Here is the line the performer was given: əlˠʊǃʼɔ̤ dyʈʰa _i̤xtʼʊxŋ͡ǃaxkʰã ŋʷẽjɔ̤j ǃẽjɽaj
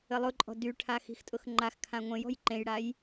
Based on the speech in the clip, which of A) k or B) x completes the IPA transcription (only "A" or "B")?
B